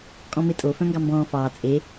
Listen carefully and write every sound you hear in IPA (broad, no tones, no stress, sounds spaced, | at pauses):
kʼ ɔ̃ m e tʼ o f œ̃ ŋ ɡ ɑ m b ɔ̃ː f ɑː t͡sʼ e